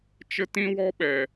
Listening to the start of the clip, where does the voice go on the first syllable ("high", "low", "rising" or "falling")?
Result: high